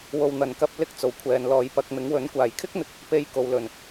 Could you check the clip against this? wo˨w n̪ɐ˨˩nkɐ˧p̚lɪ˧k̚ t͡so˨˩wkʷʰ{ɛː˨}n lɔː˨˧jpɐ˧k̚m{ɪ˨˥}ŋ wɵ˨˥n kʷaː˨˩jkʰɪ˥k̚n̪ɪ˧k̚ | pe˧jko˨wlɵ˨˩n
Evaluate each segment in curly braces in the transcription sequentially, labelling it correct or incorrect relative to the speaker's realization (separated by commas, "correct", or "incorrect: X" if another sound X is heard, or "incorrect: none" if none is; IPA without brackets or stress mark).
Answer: correct, correct